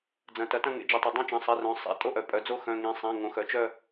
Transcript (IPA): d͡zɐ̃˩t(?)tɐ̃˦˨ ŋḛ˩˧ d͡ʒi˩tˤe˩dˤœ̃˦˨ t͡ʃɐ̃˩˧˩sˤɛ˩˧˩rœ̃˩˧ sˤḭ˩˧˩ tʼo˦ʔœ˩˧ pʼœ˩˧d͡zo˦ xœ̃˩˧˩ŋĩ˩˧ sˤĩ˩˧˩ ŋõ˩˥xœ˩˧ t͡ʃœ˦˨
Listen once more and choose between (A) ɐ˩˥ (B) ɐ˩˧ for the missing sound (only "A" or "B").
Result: B